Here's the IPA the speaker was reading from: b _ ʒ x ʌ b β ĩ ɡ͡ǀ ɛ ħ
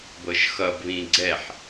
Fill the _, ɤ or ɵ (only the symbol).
ɤ